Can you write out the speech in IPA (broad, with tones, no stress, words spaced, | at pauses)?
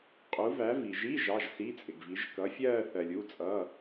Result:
qʼu˨˥væ˨˥ vi˨ʒi˧˥˧ ʒɑ˧˥˧ʒsi˧˥˧t͡sʼɪ˨ɡvi˨˥ʒ kʌ˨˥fʲɜː˥˧θɜ˨lʲ u˧˥˧t͡sʼʌː˧˥˧